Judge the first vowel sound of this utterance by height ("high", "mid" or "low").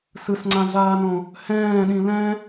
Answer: high